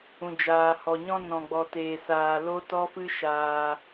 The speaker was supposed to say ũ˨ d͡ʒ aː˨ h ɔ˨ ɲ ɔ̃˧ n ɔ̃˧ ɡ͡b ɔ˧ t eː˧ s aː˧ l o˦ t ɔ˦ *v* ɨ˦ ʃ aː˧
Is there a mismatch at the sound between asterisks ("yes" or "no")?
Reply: yes